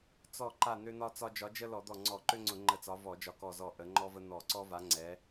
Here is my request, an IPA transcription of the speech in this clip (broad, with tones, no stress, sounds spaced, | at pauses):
t͡s ɔ˧˩ ǃ a˧˩ n̪ ø˦ n̪ ɒ˦ t͡s ɒ˦ d͡ʒ ɒ˨˦ d͡ʒ ə˦ l ɔ˧˩˧ d̪ ɔ˧˩ ŋ͡ǀ ɔ˧˩˧ ǃ ø˦ ŋ͡ǀ ʊ˧˩˧ ŋ͡ǃ ə˧˩ t͡s ɒ˨˦ v ɔ˧˩˧ d͡ʒ ɒ˧˩ k ɔ˧˩ z ɔ˧˩ ʔ ə˨˦ ŋ͡ǃ ɔ˦ v ə˦ n̪ ɔ˧˩˧ ǀ ɔ˦ v a˨˦ ŋ͡ǀ ɛ˨˦